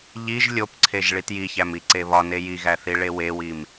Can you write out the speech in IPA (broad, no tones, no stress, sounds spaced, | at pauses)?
ʎ i ʒ lʲ o p ǀʰ e ʒ ɭ i t j i ç æ m i ǀ e β ɒ n e j i ɣ æ θ i ɭ e w e w i m